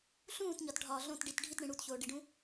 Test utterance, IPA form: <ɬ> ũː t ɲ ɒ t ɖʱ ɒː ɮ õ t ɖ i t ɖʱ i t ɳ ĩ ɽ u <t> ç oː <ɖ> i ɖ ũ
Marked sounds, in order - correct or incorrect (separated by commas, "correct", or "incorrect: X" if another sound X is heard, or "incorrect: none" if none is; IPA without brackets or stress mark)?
correct, correct, correct